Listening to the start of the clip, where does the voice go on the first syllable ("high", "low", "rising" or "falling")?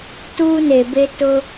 high